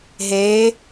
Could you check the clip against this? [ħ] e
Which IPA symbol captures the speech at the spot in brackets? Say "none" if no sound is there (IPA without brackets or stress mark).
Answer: ɦ